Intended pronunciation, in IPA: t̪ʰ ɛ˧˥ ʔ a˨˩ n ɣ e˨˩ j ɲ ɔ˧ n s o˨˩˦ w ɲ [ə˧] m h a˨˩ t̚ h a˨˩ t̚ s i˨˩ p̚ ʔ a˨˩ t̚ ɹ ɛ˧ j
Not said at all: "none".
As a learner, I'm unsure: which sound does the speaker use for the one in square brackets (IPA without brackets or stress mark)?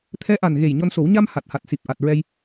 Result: a˧